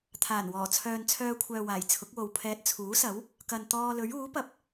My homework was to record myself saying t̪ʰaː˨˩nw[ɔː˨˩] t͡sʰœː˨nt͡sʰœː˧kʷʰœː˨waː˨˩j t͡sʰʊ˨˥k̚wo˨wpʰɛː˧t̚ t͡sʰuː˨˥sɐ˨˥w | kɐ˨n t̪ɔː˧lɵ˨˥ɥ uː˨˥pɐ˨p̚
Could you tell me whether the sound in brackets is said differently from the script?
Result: no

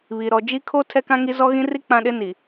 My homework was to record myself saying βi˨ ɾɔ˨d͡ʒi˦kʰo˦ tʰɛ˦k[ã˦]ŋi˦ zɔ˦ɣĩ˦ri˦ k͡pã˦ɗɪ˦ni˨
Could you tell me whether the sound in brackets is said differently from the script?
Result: no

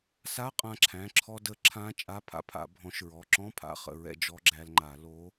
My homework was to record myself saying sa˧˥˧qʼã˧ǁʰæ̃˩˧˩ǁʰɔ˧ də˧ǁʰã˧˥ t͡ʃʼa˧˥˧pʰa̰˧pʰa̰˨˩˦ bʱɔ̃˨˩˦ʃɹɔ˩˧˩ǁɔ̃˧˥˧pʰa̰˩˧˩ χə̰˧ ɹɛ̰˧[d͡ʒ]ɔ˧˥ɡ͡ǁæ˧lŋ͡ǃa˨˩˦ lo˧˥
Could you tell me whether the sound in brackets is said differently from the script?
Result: no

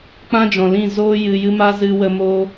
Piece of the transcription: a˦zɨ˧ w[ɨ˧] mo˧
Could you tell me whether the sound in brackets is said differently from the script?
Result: yes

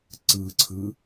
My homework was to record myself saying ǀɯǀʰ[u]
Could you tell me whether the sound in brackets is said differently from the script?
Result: yes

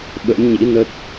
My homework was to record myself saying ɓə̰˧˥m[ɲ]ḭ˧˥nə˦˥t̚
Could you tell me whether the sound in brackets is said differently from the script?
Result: no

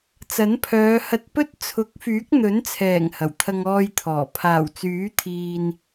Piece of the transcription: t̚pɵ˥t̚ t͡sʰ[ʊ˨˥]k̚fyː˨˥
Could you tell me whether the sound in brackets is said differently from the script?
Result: no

